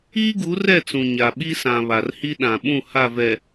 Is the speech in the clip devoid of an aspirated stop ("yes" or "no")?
yes